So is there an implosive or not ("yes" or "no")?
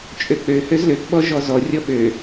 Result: yes